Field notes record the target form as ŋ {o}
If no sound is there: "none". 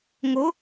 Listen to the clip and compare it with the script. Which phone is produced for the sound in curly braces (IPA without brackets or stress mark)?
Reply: o